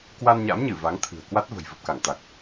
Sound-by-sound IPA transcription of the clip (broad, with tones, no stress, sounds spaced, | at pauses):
k w a˧ n ɲ a̰˧˥ m ɲ ɨ˧˩ v a˨˦ ŋ t̪ʰ ɨ̤˨˩ ə̯ k w a˦˥ t̚ v ə̤˨˩ j v ə˨˩ p̚ k a˧˩ ŋ t̪ a˨˩ k̚